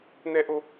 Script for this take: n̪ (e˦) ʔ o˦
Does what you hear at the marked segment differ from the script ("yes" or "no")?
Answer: yes